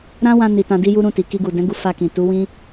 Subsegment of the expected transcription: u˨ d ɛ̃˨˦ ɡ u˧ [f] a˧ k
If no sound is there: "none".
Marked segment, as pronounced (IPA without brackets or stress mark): f